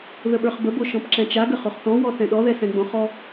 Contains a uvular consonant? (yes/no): yes